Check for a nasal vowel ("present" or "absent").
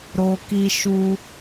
absent